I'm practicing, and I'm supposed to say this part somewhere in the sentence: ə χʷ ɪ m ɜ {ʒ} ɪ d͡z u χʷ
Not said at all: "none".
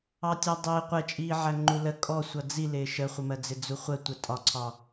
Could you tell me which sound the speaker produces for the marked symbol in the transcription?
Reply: d͡z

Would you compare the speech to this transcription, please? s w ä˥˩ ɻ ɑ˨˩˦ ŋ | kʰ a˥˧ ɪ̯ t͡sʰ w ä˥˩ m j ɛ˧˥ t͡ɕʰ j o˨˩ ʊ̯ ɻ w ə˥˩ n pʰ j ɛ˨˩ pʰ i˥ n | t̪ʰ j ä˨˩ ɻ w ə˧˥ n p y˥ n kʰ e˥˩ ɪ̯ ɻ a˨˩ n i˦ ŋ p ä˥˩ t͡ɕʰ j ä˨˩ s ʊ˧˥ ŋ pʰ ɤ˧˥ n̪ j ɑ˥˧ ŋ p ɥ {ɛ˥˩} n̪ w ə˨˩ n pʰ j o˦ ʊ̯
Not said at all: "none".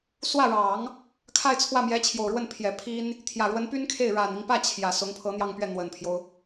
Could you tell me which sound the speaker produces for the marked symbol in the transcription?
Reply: ɛ˥˩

